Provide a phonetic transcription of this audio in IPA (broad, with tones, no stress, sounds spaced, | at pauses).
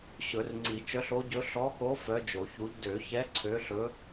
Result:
ɕ ɵ˨˩˦ r ŋ͡ǀ i˨˩˦ t͡ʃ œ˧˥ ɬ o˧˥ ɟ ɵ˧˥ ɬ ɔ˧˥ x o˧˥ f œ˧˥ d͡ʒ o˨˩˦ ç u˧˥ ʎ d ø˨˩˦ ç ɛ˧˥ ǀʰ ø˧˥ ɬ ɵ˧˥